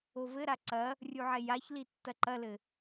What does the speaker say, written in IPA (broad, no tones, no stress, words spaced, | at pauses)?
ovɘɾa ǀɐ | rʲuʕejaçli tːɐǃɐlɘ